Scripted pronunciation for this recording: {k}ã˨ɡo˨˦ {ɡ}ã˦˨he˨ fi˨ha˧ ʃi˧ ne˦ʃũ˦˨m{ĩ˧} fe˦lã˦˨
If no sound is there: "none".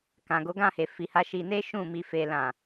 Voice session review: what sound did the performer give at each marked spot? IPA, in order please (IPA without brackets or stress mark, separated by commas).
k, ɡ, i˧